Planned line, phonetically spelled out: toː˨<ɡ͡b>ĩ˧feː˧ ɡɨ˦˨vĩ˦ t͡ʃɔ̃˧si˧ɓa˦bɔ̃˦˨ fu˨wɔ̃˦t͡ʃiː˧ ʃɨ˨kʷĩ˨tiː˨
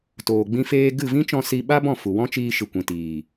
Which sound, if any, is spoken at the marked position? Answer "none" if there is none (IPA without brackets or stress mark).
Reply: ɡ͡b